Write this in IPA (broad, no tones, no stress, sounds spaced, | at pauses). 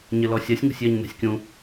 ɲ ɘ l ɔ sʲ ɛ sʲ ŋ ṳ sʲ j ɛ ɲ n æ̤ sʲ kʲ ũ